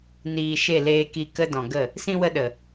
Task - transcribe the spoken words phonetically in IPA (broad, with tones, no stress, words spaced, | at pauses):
niː˨ ʃe˦˨leː˧ki˧kə˦ dɔ̃˨ɡə˦˨ | sĩ˧wə˧ɗə˨